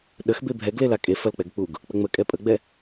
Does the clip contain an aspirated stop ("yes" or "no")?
no